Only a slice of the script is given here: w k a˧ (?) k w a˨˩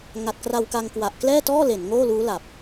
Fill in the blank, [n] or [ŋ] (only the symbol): ŋ